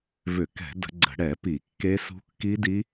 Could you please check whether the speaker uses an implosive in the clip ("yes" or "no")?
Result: no